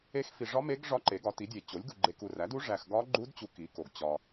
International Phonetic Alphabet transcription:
e˧˥ x f i˨ ʐ ɒ˧˥ m e˧˥ ɡ ʐ ɒ˧˥ ǃ e˩˥ ɡ ɒ˩˥ t i˩˥ dʲ e˨ t͡ɕ o˩˥ lʲ ɡ u˨ ɡ͡ǃ e˨ k u˨ r æ˩˥ d u˧˥ ʐ æ˨ x ɡ ɒ˧˥ ɡ͡ǃ u˧˥ d t͡ɕ u˧˥ k i˩˥ k o˨ ɡ t͡ɕ ɒ˨

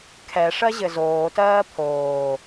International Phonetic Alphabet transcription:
kʰ ɛ ʂ ɜ ʑ ɘ z oː t ɜː pʰ oː

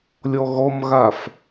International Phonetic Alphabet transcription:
lʲ ɔ ɣ ɔ m ɣ a f

